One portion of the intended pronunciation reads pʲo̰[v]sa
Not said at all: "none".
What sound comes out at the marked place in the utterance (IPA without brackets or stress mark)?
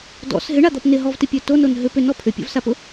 v